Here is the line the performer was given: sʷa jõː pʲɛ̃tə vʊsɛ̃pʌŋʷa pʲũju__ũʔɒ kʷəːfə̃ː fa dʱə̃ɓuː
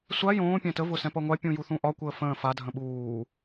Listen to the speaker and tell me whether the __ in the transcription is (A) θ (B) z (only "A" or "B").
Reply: A